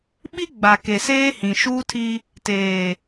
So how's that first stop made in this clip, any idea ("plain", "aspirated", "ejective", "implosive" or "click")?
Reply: implosive